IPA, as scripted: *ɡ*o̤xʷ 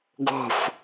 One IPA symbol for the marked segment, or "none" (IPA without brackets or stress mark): ɡ